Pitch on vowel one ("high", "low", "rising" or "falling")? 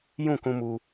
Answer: falling